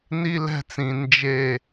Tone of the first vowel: high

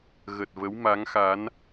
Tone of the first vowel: low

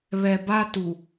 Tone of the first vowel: low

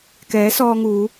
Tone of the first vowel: rising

